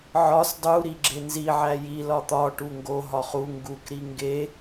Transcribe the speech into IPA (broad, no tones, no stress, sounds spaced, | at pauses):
ʕ ɒ s dˤ u ɾ i ɡ͡ǁ e n z i ʕ æ j i l ɒ t̪ ɒ ʈ u ŋ ɡ o ɦ ɒ χ u ŋ ɡ u k ɾ i ŋ ɡ e